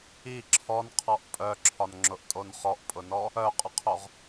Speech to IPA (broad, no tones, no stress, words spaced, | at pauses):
i ǁʰɔnqʰɔʔ pʼœǁʰɒnŋ͡ǁʊʔtʼon χɔʔpʼʊnɔ | œqʼʊqʰoʁ